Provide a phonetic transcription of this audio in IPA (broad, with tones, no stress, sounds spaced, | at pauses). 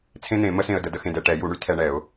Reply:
t͡sʰ ẽ˥ n̪ ẽ˨˩˦ m ə˥ s ẽ˧ ə̯ d ə˨˩˦ d ə˧ x ẽ˧ d ɛ˧ ʈ ɛ˨˩˦ j u˨˩˦ ɳ y˥ tʰ ɛ˧ ɳ ɛ˨˩˦ ʊ̯